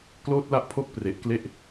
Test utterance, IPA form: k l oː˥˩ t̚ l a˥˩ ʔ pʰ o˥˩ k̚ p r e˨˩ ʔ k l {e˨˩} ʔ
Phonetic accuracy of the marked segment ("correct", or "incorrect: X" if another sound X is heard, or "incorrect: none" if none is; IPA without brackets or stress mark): incorrect: e˥˩